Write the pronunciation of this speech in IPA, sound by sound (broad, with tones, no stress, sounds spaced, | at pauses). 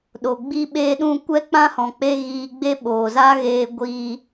ɗ o˨ ɡ͡b i˦ ɓ eː˦ ɗ ũ˦ kʷ ɛ˦ k͡p ã˦ h ɔ̃˨ k͡p e˧ ɣ iː˧ ɡ͡b e˦ ɓ oː˨ z a˦ ɣ eː˧ ɡʷ iː˧